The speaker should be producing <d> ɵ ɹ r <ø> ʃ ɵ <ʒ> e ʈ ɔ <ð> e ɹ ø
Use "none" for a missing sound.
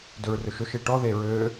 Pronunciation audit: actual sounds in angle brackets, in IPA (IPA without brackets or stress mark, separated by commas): d, ɵ, ʃ, ð